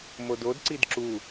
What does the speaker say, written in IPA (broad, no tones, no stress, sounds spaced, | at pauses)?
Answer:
m o d o d ǀ i d ǁ u